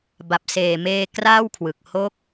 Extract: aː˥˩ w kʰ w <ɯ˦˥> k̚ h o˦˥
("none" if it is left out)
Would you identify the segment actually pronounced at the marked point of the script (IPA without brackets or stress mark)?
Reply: ɯ˨˩